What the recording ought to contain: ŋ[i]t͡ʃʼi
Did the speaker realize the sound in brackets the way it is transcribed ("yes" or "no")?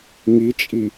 yes